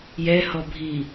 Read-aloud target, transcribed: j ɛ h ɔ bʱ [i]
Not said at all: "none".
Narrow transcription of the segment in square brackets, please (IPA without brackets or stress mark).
iː